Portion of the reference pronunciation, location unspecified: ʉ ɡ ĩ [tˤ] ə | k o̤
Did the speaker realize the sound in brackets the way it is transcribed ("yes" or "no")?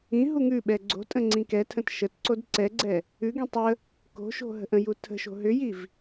yes